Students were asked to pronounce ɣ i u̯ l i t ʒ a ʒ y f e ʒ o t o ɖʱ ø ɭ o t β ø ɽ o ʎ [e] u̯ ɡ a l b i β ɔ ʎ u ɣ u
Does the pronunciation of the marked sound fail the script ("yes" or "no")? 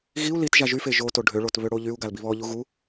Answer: yes